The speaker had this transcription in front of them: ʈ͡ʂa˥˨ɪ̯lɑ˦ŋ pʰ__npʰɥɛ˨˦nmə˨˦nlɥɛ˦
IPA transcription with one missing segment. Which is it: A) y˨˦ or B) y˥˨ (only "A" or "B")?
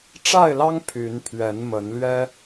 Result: A